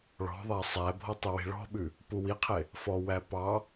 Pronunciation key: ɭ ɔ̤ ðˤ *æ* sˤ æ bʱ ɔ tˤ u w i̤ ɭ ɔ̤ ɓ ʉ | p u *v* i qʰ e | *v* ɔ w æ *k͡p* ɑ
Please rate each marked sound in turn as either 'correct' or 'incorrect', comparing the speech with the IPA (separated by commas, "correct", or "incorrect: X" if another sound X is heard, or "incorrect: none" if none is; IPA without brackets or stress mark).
correct, incorrect: w, incorrect: f, incorrect: p